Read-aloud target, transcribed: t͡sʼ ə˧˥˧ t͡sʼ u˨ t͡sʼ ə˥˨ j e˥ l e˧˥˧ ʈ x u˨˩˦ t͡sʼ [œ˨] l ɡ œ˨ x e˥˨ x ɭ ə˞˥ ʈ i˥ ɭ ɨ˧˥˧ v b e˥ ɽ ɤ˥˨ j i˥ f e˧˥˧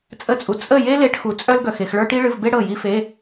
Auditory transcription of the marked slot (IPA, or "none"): œ˥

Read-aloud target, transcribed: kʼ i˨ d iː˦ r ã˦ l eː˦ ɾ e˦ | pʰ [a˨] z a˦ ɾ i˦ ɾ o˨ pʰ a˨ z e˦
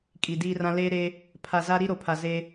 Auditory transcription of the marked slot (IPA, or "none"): a˨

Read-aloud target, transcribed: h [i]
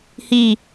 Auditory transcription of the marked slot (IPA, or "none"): i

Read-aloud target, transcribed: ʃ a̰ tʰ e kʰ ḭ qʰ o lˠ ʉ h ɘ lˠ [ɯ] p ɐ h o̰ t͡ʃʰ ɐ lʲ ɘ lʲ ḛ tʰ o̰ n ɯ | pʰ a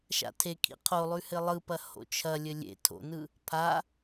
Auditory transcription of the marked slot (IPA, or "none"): ɯ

